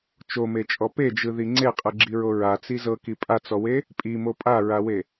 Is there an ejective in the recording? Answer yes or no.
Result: yes